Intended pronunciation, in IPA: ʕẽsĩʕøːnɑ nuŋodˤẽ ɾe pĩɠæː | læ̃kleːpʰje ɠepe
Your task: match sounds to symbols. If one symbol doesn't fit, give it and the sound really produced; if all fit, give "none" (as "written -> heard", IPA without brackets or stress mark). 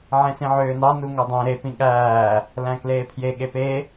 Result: none